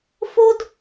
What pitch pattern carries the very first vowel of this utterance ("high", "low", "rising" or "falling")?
high